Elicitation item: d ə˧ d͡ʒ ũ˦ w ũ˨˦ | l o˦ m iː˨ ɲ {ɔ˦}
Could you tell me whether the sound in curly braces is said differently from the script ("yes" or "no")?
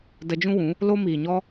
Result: no